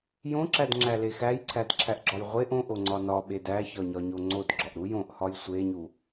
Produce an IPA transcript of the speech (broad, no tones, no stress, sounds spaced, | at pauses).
j õ ǁ æ d ŋ͡ǁ æ l e x æ j ǀʰ æ d ǁʰ æ ʔ ɡ͡ǁ ɒ j ʁʷ e ʔ õ ʔ o ŋ͡ǀ ɒ n ɒ ɓ e d æ ç ɒ ɲ ɒ ɲ o ŋ͡ǀ o d ɡ͡ǁ ɒ ʔ ɾ u j õ ʔ h ɒ j sʷ e ɲ u